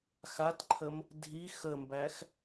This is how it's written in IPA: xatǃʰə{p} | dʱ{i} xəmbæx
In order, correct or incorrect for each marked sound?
incorrect, correct

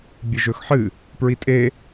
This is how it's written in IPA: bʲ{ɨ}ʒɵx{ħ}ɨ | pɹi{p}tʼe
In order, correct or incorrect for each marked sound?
correct, correct, incorrect

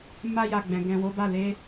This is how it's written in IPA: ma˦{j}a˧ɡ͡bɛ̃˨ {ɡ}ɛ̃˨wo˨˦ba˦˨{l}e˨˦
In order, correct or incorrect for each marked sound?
correct, correct, correct

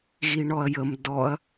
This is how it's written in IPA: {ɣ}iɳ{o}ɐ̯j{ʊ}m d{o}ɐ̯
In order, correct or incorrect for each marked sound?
correct, incorrect, incorrect, incorrect

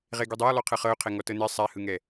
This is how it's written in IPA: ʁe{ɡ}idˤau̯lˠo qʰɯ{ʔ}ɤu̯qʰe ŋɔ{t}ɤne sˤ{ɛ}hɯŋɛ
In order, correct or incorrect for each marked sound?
correct, incorrect, correct, correct

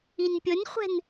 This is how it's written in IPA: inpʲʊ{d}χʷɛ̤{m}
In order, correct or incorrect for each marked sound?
incorrect, incorrect

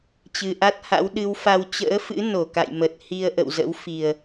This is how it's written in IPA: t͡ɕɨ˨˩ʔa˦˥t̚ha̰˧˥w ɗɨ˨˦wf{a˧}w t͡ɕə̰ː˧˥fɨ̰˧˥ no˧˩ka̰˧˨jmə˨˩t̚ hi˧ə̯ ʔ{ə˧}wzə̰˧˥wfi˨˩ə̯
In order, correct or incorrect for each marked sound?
correct, incorrect

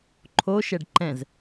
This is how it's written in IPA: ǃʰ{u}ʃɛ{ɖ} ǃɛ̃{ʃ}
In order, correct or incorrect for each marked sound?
incorrect, correct, incorrect

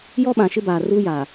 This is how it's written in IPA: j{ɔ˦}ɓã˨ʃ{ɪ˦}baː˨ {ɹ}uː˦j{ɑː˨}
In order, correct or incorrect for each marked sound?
correct, correct, incorrect, incorrect

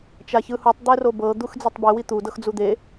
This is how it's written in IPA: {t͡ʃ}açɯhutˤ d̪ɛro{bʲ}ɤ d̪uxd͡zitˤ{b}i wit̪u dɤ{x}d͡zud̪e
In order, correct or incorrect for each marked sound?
correct, incorrect, correct, correct

